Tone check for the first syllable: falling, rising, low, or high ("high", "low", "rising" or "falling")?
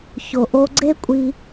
low